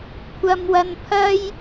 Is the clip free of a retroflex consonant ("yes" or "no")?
yes